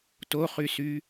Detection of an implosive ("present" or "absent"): absent